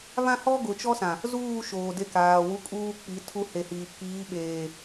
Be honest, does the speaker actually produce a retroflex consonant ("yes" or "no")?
no